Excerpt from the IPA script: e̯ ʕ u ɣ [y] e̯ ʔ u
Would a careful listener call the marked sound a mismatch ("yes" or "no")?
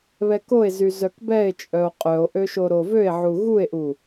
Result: yes